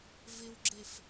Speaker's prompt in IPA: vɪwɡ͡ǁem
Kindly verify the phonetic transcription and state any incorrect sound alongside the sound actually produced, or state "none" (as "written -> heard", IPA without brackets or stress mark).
m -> f